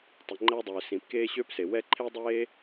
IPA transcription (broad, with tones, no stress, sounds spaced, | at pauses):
tˤ i˩ ŋ͡ǃ æ˧ dˤ øː˩ s ĩ˩ p k eː˧ ɕ ø˧ p s e˩ w ɛ˧ ǃʰ e˧ dˤ eː˧